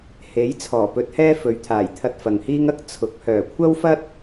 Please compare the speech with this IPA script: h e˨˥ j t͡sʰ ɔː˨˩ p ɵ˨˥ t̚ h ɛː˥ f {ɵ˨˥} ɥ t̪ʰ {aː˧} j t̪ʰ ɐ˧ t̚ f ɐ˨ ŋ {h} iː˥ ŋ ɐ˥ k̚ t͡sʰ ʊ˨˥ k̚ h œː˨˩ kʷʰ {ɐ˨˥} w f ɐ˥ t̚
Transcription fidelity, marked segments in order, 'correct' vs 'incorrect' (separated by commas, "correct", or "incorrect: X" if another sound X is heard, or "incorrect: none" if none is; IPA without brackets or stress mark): correct, incorrect: aː˨˩, correct, incorrect: ɐ˥